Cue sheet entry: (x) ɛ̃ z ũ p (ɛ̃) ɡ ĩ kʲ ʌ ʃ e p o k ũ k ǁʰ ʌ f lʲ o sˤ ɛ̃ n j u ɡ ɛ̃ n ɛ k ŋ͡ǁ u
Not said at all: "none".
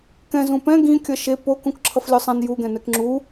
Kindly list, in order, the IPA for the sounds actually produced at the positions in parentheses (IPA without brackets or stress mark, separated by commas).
k, ɛ̃